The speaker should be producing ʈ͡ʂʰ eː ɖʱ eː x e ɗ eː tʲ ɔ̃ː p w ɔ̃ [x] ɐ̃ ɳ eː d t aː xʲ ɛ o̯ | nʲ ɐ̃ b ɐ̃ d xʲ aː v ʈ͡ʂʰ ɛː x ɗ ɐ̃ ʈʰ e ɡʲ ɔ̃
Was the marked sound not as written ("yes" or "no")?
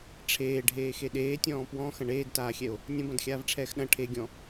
no